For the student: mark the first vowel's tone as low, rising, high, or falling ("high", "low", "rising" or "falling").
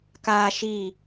high